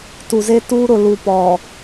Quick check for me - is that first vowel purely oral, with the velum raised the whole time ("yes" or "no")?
yes